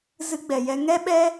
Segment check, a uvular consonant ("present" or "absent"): absent